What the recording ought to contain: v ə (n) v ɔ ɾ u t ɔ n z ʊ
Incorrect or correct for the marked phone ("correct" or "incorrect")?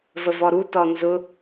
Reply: incorrect